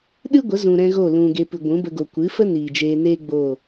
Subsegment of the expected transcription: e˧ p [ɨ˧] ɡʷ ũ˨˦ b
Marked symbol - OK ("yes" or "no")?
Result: no